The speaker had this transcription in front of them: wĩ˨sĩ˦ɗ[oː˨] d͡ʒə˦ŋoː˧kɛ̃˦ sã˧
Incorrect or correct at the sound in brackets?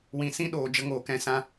correct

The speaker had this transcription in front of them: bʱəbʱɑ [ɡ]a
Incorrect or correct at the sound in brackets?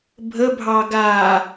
correct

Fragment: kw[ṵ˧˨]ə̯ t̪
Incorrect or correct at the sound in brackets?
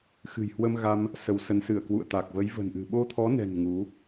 correct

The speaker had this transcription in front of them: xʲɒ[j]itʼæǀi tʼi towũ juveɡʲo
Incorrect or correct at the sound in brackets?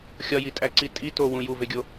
correct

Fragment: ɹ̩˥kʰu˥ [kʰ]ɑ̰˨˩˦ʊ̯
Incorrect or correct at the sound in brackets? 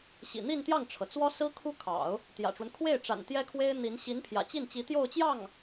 correct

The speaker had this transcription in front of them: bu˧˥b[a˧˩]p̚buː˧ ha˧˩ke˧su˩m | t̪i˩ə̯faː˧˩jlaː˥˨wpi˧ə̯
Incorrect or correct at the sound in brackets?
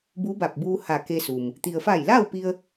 correct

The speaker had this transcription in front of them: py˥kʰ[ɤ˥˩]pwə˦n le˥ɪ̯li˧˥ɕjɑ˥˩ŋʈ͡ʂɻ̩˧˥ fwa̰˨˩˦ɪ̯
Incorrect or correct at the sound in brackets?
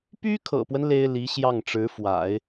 incorrect: ɤ̰˨˩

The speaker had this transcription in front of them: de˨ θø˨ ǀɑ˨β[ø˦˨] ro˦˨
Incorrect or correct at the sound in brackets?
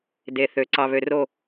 incorrect: ø˨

